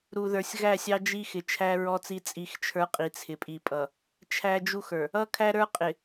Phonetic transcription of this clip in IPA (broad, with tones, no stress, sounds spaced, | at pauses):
ɾ u˨ ð ə˞˨ sʲ ɣ æ˦˨ sʲ ɑ˦ d͡ʒ i˦ x ɪ˨ t͡ʃʰ æ˦ ɹ ɔ˦ t͡s i˦ t͡sʼ i˦ x t͡ʃʰ ə˞˦ qʼ i˨ t͡sʰ ɪ˨ pʼ i˨ pʼ ʌ˨ | t͡ʃʰ æ˦ d͡ʒ u˦ x ə˞˨ | ʌ˦ kʰ æ˦ ɾ ə˞˦ qʼ ɪ˨